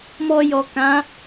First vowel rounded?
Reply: yes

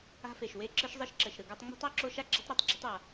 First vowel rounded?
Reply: no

